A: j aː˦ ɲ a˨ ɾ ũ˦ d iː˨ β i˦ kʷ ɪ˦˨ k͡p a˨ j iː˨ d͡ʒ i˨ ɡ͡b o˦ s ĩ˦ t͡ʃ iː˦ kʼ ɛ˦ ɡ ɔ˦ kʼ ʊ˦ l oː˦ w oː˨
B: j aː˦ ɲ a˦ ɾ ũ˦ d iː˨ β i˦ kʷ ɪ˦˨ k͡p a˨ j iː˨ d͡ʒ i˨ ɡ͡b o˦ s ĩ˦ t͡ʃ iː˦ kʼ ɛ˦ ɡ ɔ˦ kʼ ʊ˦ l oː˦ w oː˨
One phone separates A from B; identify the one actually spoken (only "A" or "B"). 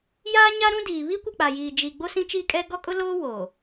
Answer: B